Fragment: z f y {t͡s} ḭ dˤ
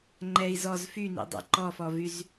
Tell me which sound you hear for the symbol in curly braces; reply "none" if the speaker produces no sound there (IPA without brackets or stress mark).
n